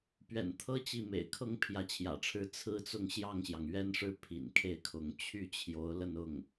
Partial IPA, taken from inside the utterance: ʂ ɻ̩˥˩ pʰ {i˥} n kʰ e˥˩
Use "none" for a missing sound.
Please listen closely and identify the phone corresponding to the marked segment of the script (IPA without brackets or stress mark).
ḭ˨˩